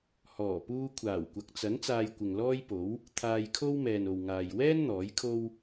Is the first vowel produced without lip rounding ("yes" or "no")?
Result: no